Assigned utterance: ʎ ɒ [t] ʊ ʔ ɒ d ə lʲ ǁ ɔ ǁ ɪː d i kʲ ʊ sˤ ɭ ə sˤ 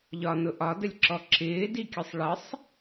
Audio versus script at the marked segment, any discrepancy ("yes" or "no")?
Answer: yes